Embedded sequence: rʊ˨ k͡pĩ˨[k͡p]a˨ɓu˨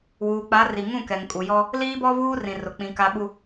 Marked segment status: incorrect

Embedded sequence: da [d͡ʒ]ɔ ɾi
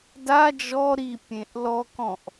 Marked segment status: correct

